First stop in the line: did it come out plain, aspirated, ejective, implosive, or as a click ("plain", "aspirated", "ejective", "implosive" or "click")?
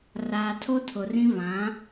aspirated